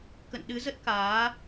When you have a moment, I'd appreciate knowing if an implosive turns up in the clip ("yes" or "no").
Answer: yes